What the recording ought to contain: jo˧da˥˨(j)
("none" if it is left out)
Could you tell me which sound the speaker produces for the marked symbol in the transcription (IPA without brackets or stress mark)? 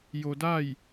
j